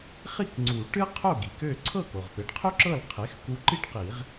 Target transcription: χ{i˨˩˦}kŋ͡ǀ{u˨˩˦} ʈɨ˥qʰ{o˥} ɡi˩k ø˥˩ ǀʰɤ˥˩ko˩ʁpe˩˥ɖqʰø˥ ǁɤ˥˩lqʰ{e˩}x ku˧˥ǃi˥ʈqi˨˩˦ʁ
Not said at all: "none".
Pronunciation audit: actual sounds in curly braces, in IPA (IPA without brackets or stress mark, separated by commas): i˥˩, u˨˩˦, o˥˩, e˩˥